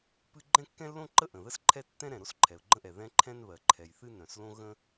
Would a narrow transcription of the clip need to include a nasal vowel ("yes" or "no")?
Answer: yes